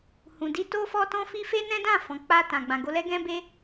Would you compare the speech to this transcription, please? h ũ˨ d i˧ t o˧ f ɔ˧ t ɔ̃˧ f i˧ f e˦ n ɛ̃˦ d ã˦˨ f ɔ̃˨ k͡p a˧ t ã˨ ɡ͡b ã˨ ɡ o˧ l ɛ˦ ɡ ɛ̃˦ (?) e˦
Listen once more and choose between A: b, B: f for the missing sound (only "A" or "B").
A